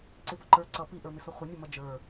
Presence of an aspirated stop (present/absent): absent